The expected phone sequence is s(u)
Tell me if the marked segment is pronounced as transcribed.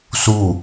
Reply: yes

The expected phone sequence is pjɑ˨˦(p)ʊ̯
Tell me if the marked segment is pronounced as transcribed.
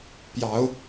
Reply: no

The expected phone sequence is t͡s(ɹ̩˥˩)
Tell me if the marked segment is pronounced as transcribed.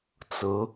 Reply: no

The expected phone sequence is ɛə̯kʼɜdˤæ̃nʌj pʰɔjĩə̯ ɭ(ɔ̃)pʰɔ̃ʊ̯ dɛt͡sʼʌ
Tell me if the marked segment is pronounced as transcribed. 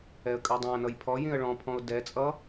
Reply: yes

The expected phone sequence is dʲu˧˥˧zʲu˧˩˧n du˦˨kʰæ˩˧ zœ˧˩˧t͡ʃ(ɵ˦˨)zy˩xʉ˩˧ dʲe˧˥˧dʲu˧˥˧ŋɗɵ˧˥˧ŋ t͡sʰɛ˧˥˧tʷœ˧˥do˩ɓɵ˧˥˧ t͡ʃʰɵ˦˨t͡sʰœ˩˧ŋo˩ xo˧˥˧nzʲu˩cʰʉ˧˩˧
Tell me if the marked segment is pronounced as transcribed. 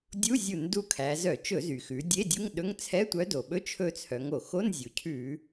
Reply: no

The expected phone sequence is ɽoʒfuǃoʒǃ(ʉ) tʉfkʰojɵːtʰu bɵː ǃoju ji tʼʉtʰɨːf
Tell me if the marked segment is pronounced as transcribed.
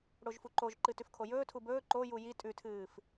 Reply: no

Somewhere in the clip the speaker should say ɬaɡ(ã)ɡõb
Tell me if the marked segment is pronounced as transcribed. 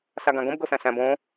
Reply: yes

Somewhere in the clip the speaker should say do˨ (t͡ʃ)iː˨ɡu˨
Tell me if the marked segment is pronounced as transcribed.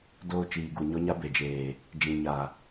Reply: yes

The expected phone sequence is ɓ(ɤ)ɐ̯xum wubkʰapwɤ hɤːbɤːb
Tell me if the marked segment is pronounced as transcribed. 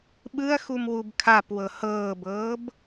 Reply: no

